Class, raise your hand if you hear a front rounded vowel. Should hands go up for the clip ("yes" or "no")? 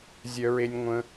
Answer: yes